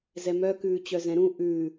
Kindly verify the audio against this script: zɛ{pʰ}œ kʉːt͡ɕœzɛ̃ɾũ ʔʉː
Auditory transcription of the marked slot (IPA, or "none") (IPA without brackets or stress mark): m